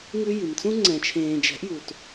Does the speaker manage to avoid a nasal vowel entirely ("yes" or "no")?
no